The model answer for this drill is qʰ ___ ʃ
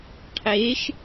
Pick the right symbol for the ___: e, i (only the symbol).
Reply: e